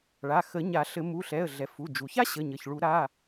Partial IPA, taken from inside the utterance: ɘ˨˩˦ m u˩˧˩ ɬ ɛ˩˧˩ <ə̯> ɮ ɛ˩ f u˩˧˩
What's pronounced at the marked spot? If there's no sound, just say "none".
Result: ə̯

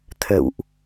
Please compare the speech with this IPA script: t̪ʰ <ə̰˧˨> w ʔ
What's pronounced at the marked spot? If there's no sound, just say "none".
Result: ə̰˧˨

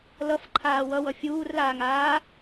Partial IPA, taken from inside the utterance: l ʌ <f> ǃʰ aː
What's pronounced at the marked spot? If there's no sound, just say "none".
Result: f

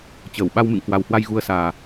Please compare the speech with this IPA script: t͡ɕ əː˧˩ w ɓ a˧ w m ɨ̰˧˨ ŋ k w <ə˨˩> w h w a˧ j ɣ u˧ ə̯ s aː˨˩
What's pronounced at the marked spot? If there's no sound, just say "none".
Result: a˨˩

